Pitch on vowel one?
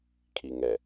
low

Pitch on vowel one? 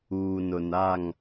low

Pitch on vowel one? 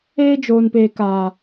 high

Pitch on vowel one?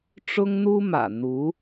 high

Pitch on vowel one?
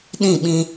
falling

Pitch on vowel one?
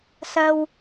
low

